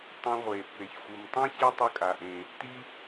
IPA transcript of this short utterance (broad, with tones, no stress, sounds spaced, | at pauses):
tˤ ẽ˧ ʁʷ e˩ pː e˩ ç xʷ ɯ˩ m tˤ ẽ˥ ç ɛ˥ tˤ ɯ˧ kʼ a˩ ʔ ẽ˩ | t i˥